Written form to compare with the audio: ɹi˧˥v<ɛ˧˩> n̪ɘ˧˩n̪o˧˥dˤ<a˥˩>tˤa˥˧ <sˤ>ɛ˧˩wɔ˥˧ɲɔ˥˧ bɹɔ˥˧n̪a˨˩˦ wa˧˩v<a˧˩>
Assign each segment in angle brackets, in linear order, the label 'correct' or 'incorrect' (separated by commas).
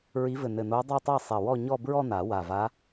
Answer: incorrect, incorrect, correct, incorrect